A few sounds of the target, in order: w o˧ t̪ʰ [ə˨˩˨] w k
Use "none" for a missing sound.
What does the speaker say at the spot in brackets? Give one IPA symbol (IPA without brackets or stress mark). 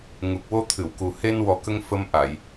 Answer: ɨ˨˩˨